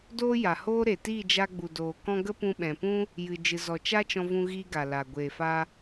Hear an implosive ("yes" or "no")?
yes